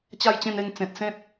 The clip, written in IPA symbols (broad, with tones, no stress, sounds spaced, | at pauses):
t͡ɕ a˥˧ j t͡ɕ ẽ˥˧ n e˥˧ ŋ t͡s ẽ˨ t̚ s ẽ˦ t̚